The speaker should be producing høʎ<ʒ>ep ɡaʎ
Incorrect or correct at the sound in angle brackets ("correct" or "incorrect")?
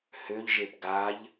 correct